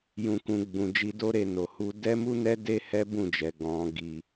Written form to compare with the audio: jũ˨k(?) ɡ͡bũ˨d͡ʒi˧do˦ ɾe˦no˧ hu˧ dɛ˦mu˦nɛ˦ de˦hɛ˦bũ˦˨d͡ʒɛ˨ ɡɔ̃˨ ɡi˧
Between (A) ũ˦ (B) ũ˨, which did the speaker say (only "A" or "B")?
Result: B